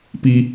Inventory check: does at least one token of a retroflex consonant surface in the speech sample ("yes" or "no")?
no